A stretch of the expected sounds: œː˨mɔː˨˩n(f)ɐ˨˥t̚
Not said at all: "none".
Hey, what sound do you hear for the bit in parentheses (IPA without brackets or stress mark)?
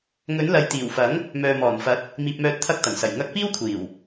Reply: f